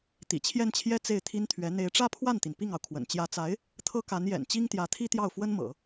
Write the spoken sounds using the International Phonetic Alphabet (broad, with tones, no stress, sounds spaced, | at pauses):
t̪ ḭ˨˩ t͡ɕʰ j ɛ˥˩ n t͡ɕʰ j ɛ˥ t͡s e˥˩ ɪ̯ t̪ʰ i˥ n t̪ʰ ɥ ɛ˧˥ n̪ e˧˥ ɪ̯ ʈ͡ʂ ä˥ pʰ w a˥˩ n t̪ i˩ n p i˥˩ ŋ ɑ˩ ʊ̯ kʰ w ə̰˨˩ n t͡ɕ j ä˧˥ t͡s a˧˥ ɪ̯ | t̪ʰ ɤ˥ k a˧˥ n j ɛ̰˨˩ n t͡ɕ i˥ ŋ t̪ j ä˧˥ t̪ʰ i˥ t̪ j ɑ˥˩ ʊ̯ f w ə˥ n m ɤ̰˨˩˦